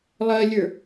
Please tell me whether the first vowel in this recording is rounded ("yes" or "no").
no